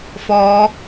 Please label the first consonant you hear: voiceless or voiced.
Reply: voiceless